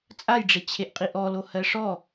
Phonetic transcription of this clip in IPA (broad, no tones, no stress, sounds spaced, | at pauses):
t͡sʼ a j ɖ͡ʐ e t͡ɕʰ e ʔ qʼ i ʔ ɔ l o h ɜ ʂ ɔ